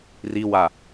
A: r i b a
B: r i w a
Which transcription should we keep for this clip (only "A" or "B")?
B